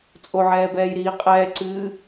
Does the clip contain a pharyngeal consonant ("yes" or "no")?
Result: yes